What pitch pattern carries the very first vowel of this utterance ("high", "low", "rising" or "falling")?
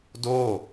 falling